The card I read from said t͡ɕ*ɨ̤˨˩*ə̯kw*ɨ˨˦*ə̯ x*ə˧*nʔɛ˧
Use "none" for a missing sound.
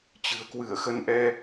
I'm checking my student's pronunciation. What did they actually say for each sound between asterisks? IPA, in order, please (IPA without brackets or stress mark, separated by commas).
ɨ̤˨˩, ɨ˧˩, ə˧